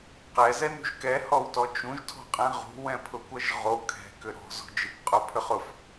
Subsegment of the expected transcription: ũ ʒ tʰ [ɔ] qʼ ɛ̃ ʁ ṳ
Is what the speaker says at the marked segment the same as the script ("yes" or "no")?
no